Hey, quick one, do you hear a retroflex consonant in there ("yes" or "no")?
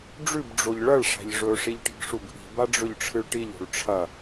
yes